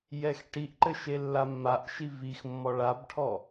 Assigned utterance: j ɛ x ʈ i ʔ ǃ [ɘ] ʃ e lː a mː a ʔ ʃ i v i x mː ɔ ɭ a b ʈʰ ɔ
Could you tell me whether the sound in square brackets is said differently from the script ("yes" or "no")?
no